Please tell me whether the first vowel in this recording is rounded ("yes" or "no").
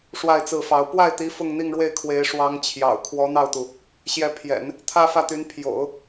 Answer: no